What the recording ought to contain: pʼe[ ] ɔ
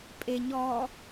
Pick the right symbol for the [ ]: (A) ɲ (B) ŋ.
A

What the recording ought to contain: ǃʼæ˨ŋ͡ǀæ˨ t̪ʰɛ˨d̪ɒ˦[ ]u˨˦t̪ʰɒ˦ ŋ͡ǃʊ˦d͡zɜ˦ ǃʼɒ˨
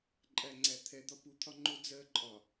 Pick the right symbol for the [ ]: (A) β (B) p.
B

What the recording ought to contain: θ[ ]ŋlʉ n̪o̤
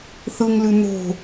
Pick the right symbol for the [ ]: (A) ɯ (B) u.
A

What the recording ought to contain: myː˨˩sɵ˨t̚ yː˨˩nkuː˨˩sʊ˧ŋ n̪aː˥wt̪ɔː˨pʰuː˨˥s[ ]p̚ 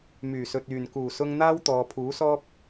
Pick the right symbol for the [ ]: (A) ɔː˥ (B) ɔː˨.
A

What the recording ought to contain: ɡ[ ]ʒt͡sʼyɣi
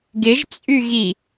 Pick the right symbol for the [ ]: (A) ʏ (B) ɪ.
B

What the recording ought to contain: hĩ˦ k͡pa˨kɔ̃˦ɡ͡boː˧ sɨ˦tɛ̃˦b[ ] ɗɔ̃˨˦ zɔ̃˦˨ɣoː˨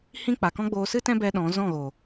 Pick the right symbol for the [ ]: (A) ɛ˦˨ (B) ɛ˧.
B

